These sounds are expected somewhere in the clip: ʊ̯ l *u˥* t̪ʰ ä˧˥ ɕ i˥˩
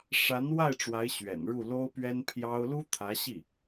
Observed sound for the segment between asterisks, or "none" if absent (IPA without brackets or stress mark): u˥